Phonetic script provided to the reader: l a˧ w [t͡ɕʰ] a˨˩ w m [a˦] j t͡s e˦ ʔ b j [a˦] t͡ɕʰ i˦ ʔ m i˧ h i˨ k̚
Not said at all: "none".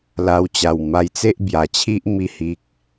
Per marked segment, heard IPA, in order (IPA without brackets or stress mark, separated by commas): t͡ɕ, a˧, a˨˩